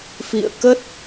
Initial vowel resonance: oral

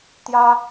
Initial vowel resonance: oral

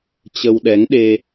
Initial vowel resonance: oral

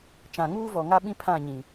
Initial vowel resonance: nasal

